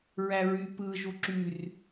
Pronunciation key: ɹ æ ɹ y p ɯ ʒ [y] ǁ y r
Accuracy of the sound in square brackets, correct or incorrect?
incorrect